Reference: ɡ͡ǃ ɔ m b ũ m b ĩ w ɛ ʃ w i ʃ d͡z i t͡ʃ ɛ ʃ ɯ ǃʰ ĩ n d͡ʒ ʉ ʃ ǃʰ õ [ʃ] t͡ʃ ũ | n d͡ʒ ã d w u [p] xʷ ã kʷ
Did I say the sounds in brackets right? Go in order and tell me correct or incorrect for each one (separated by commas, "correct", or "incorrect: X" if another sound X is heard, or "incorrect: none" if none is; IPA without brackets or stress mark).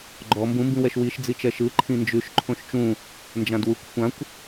correct, incorrect: kʷ